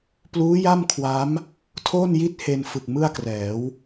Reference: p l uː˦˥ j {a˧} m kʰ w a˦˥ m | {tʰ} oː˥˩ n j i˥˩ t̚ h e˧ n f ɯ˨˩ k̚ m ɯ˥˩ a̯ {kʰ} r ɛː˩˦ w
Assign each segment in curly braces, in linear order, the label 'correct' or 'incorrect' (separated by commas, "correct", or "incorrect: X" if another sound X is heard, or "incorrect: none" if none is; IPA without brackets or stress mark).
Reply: incorrect: a˥˩, correct, incorrect: k